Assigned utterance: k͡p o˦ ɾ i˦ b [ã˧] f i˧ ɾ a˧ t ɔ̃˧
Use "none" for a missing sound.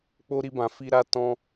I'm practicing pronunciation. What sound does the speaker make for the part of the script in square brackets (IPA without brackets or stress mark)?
ã˧